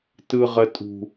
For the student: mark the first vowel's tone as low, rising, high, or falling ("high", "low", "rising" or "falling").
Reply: high